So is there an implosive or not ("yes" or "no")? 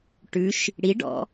no